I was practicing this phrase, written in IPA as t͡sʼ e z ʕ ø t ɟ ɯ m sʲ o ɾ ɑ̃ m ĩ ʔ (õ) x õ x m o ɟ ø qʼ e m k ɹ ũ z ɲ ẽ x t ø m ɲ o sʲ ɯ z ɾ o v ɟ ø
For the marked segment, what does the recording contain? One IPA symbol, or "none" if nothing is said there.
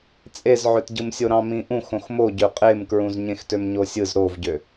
ũ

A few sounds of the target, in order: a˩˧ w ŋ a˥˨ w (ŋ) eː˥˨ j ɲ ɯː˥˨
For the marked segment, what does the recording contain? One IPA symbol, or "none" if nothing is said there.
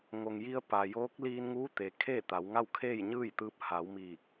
kʰ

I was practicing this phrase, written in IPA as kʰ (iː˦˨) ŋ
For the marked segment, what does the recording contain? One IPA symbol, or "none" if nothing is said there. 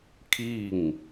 iː˦˨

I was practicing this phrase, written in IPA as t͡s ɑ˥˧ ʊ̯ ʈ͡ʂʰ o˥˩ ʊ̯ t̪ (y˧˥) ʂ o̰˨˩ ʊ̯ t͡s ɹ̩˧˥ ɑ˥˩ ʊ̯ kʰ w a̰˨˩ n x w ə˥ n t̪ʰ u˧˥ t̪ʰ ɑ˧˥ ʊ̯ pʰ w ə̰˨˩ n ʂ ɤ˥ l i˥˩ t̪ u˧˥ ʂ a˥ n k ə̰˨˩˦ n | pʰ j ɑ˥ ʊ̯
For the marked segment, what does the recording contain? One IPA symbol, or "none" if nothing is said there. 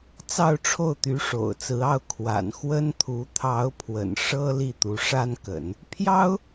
y˧˥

